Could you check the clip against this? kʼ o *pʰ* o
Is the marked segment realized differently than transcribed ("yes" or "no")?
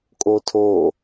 yes